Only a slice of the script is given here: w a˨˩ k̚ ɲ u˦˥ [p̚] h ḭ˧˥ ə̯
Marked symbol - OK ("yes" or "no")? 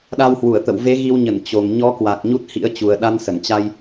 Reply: no